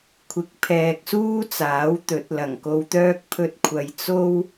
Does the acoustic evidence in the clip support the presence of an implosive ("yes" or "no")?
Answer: no